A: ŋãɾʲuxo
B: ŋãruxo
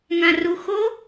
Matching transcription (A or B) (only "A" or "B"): B